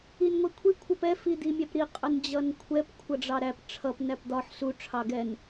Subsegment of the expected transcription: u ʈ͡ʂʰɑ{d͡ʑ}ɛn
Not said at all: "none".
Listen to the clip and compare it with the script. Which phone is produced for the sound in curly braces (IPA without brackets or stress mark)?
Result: ɡ